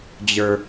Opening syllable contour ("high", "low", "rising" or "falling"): high